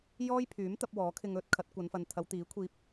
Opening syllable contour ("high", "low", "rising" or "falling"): high